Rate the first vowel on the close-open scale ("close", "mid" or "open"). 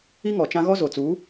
close